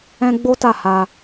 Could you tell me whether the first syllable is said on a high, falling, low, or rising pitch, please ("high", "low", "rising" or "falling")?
high